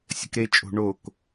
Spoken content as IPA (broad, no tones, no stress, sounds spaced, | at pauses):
sʲ ə̤ k ɾ e t͡ʃʼ o̤ ɳ o k